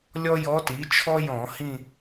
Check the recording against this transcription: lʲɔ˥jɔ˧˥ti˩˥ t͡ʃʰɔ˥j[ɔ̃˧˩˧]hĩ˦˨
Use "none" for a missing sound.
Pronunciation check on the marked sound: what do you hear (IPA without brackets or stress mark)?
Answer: ɔ̃˧˩˧